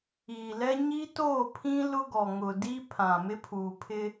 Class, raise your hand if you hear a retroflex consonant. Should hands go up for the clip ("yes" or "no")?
no